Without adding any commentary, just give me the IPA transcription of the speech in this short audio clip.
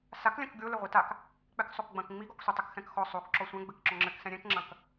saklʲɐ̃k ɡʲolɘ ʁʷitak | k͡pɛksˤokɡ͡bɐ̃k ŋ͡miɡɔksʷi tˤɘkxɛ̃kxɔ sˤok ǁɔsʷɛ̃ɡ͡bɘk ǁɔ̃ŋ͡ǁɘksɛ̃ ɾʲɛ̃kŋ͡ǁɐ̃k

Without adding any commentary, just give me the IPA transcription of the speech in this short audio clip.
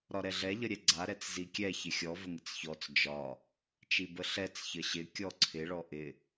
ɾɒɾɛɮɛ ʎəɾʲɛɡ͡ǀa ɾɛt͡szikʲɛ çɪxʲɔ vəŋɪt͡sçɔt͡s d͡ʒɒ | t͡ʃibəɬɛt͡s çəɕɪ kʲɔǀʰɪ ɭɔʔɪ

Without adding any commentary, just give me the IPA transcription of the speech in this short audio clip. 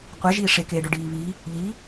qʷeʒiː ʂekeːɖœɖiː βi | ʎi

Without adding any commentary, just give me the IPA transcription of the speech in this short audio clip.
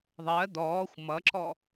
ðˤɜ d̪ɔːxʷ mʌǁɔ

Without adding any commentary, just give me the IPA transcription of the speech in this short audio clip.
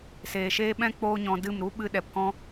seː˨ʃeː˦ ɓɛ̃˦ k͡poː˦ɲɔ̃˧dɨ˦˨m ɾu˦ɓɨ˧ ɗɛ˨pkɔ̃˦

